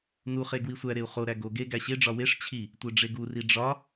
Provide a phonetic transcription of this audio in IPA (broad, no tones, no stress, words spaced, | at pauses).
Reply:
nuχe ɡwisʷæɾeu̯ χoɾæ ɡo ɡe ɡæɕeɖ͡ʐɒ weʂ t͡ɕʰi | tʷeɖ͡ʐeɡuri ɖ͡ʐɒ